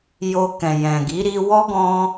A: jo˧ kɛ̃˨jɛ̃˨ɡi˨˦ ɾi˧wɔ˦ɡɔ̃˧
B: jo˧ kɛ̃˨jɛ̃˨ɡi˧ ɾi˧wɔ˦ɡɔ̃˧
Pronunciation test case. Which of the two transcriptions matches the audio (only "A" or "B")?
A